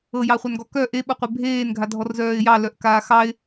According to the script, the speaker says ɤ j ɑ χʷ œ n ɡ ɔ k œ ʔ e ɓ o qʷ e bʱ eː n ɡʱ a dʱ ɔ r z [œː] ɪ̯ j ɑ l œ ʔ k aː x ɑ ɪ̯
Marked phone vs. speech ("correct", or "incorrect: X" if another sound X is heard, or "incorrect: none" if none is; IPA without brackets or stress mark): correct